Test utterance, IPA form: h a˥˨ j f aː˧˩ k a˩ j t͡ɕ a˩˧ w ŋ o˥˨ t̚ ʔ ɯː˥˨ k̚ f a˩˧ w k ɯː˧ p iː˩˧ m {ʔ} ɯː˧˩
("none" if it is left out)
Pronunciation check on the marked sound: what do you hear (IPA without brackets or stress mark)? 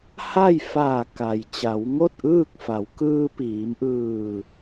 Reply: ʔ